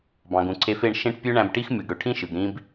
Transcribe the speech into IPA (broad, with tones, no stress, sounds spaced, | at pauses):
b ɑ̃˨ ɡ ũ˨ ǀʰ e˧ f e˦˨ ɳ ʃ ẽ˦ ʈ pʲ ø˦ ɳ æ̃˧ b ʈ i˦ x mʲ ɯ˨ ɡ ɽ ø˨ ʈʰ ĩ˦ ʃ ɯ˨ ɡ ɾ ĩ˦ b